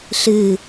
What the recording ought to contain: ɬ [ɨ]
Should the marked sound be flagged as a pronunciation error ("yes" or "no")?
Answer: no